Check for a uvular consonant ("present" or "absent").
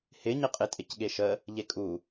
present